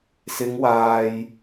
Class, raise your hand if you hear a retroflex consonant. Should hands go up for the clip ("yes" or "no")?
no